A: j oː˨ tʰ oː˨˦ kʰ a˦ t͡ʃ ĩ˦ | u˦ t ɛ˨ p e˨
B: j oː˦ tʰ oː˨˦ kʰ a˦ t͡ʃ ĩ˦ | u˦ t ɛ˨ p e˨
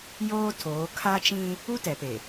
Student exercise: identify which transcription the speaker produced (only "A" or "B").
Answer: B